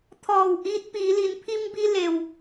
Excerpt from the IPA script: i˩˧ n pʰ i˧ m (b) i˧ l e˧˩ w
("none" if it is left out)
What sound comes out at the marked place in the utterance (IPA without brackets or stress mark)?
b